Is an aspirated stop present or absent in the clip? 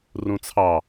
present